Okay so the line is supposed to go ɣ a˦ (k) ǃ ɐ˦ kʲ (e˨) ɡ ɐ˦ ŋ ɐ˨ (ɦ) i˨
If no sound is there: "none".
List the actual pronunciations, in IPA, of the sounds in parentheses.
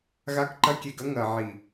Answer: k, e˨, ʕ

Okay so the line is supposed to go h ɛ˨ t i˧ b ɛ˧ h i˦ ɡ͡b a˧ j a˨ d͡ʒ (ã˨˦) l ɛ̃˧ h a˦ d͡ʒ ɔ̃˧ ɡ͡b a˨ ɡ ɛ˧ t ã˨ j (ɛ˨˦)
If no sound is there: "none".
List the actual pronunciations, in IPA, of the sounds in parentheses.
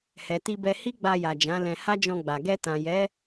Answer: ã˨˦, ɛ˨˦

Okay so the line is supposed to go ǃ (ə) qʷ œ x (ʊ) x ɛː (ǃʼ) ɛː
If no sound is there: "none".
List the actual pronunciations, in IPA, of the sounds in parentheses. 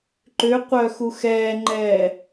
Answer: ʏ, u, ŋ͡ǃ

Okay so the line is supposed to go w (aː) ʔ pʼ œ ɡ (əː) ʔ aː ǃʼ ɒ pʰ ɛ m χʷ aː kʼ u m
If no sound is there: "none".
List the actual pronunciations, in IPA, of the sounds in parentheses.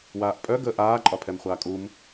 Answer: aː, əː

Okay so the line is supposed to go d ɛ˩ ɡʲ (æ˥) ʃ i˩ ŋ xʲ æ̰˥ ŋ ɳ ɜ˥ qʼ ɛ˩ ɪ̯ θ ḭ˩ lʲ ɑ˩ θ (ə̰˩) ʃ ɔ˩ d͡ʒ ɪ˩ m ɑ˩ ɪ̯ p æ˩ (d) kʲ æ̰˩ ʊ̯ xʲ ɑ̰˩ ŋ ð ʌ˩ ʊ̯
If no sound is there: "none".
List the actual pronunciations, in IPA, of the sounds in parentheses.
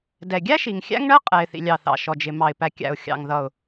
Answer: æ˥, ɑ̰˩, none

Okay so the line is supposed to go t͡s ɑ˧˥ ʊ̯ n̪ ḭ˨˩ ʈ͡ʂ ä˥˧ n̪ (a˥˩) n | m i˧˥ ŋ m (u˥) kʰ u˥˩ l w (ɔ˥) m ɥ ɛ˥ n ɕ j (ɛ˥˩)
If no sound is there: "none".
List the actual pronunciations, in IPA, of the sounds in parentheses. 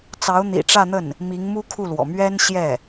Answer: ə˥˩, u˥, ɔ̰˨˩, ɛ˥˩

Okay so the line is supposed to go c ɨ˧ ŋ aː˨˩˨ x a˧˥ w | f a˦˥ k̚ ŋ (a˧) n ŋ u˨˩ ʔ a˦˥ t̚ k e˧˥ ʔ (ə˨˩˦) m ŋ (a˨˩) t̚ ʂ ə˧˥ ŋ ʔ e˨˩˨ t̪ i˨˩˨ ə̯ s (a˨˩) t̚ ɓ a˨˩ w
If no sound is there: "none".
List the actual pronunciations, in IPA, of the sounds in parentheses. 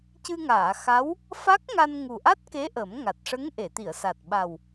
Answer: a˧, ə˨˩˦, a˨˩, a˨˩

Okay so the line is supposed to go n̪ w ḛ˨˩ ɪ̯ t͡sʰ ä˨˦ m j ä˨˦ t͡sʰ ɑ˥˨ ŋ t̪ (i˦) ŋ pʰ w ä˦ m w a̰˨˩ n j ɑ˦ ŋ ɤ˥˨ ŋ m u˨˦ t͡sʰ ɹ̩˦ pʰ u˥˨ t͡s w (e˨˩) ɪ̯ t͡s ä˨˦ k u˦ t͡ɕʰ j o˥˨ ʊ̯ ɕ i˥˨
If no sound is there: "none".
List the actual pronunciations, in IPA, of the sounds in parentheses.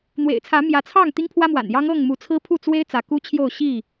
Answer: i˦, e˦

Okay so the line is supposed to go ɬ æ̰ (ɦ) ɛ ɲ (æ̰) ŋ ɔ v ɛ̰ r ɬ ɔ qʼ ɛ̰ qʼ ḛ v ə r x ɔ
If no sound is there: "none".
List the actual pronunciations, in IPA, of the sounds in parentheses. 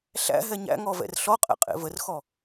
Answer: ɦ, æ̰

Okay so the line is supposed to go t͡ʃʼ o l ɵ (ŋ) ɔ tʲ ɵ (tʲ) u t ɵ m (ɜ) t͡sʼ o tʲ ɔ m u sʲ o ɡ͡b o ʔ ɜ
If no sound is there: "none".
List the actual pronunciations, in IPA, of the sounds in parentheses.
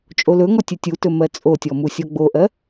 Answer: ŋ, tʲ, ɜ

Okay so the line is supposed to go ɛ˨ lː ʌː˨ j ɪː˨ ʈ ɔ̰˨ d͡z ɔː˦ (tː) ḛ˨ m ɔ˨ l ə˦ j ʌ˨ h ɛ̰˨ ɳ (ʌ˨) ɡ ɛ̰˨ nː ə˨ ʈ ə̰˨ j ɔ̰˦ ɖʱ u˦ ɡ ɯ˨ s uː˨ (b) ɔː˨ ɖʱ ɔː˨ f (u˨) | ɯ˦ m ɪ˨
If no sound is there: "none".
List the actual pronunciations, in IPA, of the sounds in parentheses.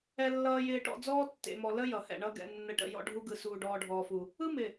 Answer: tː, ʌ˦, ɖ, u˨

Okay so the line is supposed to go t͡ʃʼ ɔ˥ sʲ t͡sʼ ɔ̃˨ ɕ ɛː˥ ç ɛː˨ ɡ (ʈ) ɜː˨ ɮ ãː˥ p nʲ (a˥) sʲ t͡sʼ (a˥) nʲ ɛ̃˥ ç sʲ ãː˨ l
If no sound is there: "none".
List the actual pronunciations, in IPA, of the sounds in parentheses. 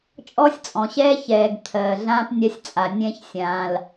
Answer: t̪ʰ, a˥, a˨

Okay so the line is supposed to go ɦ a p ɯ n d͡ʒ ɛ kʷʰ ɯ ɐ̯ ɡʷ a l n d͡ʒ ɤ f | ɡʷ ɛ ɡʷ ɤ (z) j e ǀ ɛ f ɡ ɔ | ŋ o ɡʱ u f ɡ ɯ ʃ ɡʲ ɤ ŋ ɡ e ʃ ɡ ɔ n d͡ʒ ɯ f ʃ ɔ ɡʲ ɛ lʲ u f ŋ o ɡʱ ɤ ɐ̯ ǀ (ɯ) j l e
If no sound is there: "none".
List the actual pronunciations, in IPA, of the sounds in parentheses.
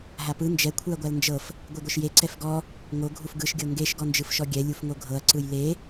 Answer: ʃ, ɯ

